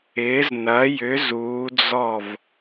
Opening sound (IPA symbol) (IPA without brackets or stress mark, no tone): ɪː